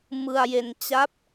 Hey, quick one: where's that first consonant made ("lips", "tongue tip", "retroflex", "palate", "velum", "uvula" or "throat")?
lips